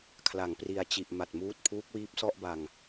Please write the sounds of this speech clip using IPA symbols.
kʰ l a˩˦ ŋ p r i˨˩ a̯ t͡ɕ i˨˩ ʔ m a˨˩ t̚ m uː˦˥ t̚ pʰ uː˦˥ k̚ w iː˦˥ p̚ s ɔ˥˩ ʔ b a˧ ŋ

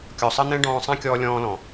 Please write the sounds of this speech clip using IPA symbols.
kʲ ɔ˨ sˤ ɜ˦ n̪ ɛ̃˦ ɖ ɔ̃ː˧ sˤ æ̃˦ kʲ ɔː˧ lʲ ɔ̃ː˧ l ɔ̃˨

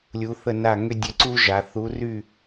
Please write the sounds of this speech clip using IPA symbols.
lʲ u˨˥ θ ə˥˨ n a˥˨ ŋ ʏ˥ dʲ ɘ˨˥ ǀ u˥ ʒ a˩˧ θ u˨˥ r y˥˨

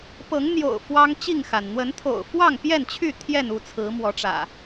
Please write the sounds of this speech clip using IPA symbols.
p ɤ˨˦ ŋ n̪ j o̰˨˩ ʊ̯ f w ɑ˦ ŋ t͡ɕ i˥˨ ŋ x a˩ n n̪ w ə˨˦ n t̪ʰ o̰˨˩ ʊ̯ f w ɑ˥˨ ŋ p j ɛ˥˨ n t͡ɕʰ y˥˨ t̪ʰ j ɛ˥˨ n u˥˨ t͡sʰ ɹ̩˨˦ m w ɔ˨˦ ʈ͡ʂ ä̰˨˩

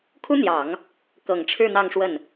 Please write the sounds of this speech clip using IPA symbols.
kʰ u˥ n̪ j ɑ˨˩˦ ŋ | k ɤ˨˩ ŋ ʈ͡ʂʰ ɻ̩˥˧ n̪ ɑ˥˧ ŋ ʂ w ə˥˩ n

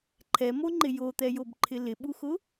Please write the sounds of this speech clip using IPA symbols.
ǃʰ ɛ m o ŋ͡ǃ ɪ j o t̪ ɛ j o b ǃʰ ɪ l ɪ ɓ u x ʊ

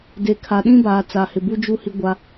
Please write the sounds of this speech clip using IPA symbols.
d eː˨ kʰ a˨ ɗ ĩ˦ b aː˨ t͡s a˨ h ɪ˨ b u˦ d͡ʒ u˦ h i˦ ɡʷ a˦

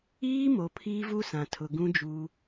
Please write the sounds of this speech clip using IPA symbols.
iː˦ m o˨ pʰ iː˦ v u˦ s ã˨ tʰ ʊ˨ ɡ ũ˦ d͡ʒ uː˦

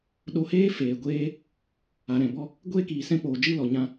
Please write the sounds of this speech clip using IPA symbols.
ɗ o˧ h eː˦ f eː˨ ɡʷ eː˦ | a˨ ɾ ɛ̃˨ b ɔ˦ | ɡʷ eː˦ k iː˨ s ɛ̃˧ k͡p oː˨ d͡ʒ ɨ˦˨ l ɔ˨ ɲ ã˧

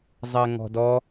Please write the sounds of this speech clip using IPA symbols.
zˤ ɛ ŋ ɔ̤ d ɔ

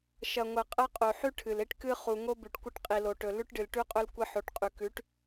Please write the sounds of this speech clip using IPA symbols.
ʃ ɐ˨ ŋʷ ɐ˨ qʼ ɐ˦ qʼ o˨ ħ ʉ˦ ʈʰ ɨ˨ l e˦ ʈ k ɨ˦ χ u˨ ŋ o˦ b ʉ˨ ʈ kʷ ɐ˦ ʈ qʼ i˨ l o˨ ʈ ɵ˨ l ʉ˦ ʈ ɖ ɨ˨ l ʈ ʉ˦ qʼ ɵ˦ l kʷ ɐ˦ ħ o˨˦ ʈ qʼ ʉ˨ k ʉ˨˦ ʈ

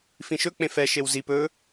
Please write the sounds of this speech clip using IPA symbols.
f ĩ ʃ ɵ k͡p ẽ f ɛ ʃ e w z i p ɵ

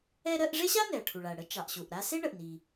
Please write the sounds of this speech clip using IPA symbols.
ɛ˥ ɾ ɜ˥ ʔ ʐ e˥ ɕ a˥ n ɛ˩ ɐ̯ ʈʰ u˩ ɭ a˩ ɐ̯ ɽ ə˥ t͡ʃ ɑ˩ ʔ ɕ u˩ ʔ ɾ a˥ s e˥ ɳ ə˩ ʔ n i˩

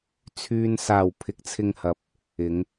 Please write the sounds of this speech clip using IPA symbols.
t͡sʰ yː˨ n s aː˨˩ w pʰ ɪ˨˥ k̚ t͡sʰ ɪ˧ ŋ h ɐ˨˥ p̚ | ɪ˨˧ ŋ

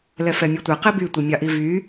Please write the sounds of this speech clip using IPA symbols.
l ɛ f ɛ mʲ u tʷ ɛ q i b y tʷ i mʲ ɑ ʔ i v y

